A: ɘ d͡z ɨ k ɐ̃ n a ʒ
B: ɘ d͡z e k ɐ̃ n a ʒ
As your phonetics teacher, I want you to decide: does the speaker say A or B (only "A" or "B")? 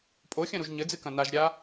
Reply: A